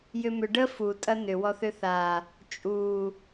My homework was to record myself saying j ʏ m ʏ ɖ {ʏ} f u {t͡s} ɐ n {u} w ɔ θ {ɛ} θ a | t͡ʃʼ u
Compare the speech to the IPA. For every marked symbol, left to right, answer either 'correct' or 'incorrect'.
incorrect, incorrect, incorrect, incorrect

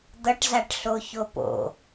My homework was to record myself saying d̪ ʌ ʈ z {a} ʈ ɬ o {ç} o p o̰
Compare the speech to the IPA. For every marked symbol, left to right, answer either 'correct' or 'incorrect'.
correct, correct

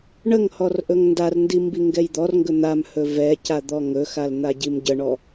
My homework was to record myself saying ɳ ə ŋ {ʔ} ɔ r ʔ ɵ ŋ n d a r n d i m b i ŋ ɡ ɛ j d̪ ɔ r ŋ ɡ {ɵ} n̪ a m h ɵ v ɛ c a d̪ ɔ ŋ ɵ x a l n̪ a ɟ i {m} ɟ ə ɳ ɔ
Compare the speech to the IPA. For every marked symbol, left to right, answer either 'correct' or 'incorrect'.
incorrect, correct, correct

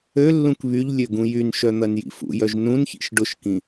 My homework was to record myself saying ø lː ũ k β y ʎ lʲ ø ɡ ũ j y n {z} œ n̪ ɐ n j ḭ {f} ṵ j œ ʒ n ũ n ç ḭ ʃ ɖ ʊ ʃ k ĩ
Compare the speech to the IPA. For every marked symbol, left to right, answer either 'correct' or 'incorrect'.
incorrect, correct

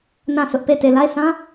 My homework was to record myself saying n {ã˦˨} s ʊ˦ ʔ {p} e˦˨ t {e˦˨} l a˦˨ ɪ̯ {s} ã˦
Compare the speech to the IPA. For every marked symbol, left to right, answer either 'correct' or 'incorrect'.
correct, correct, correct, correct

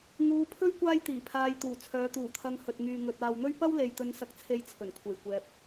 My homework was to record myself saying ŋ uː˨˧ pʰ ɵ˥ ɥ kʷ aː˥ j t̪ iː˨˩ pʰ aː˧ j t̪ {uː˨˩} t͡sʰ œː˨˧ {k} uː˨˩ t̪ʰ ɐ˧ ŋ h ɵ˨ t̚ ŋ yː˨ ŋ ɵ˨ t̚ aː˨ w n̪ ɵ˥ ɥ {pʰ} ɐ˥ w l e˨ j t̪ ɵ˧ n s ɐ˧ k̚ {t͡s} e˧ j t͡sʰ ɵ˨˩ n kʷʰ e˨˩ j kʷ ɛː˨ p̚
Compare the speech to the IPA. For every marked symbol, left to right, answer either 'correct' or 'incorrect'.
correct, incorrect, incorrect, incorrect

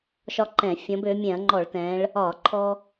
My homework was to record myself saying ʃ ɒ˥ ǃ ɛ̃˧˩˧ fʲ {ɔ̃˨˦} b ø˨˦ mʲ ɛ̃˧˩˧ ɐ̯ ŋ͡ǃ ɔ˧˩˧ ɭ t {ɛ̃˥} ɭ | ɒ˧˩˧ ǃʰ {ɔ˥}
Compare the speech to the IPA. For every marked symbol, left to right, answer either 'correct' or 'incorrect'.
correct, incorrect, correct

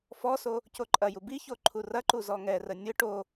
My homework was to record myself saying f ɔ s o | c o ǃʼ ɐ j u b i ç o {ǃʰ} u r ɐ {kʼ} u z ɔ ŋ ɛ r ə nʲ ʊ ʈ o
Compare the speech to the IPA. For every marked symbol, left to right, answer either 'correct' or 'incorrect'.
correct, incorrect

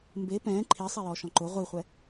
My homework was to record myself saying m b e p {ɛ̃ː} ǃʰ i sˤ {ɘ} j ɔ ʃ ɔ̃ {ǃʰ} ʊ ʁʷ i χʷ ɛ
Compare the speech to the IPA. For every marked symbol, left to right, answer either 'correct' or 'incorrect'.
correct, incorrect, incorrect

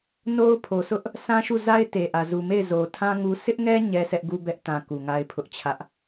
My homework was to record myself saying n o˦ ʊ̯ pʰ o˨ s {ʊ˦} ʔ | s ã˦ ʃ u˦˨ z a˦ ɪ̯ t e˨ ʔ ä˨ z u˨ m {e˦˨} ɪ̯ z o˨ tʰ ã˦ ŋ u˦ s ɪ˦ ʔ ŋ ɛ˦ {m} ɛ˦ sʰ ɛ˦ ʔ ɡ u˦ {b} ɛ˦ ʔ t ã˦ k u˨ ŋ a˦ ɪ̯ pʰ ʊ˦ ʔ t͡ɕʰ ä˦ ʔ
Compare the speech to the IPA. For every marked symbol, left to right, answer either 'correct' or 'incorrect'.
correct, correct, incorrect, correct

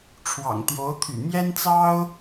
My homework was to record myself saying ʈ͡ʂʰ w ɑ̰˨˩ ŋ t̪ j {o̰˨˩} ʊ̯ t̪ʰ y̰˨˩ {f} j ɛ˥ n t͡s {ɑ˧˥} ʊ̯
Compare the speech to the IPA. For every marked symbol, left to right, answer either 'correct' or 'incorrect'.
incorrect, incorrect, incorrect

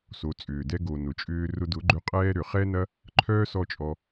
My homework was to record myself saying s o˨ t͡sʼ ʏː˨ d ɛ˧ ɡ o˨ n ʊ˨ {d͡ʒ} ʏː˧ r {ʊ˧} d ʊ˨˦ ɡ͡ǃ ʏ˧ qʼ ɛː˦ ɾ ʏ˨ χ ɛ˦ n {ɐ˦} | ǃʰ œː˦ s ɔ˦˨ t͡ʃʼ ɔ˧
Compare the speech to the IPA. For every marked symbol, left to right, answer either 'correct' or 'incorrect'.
incorrect, correct, correct

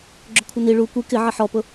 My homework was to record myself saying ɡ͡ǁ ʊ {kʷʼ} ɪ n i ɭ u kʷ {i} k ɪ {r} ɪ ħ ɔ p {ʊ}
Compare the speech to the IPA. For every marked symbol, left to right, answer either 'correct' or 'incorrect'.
incorrect, correct, incorrect, correct

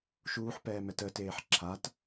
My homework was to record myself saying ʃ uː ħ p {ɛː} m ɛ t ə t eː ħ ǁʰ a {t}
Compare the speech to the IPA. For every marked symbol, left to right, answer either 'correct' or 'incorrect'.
correct, correct

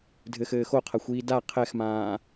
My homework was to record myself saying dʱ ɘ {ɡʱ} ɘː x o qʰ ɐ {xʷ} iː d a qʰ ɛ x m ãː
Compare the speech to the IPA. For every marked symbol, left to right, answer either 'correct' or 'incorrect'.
incorrect, correct

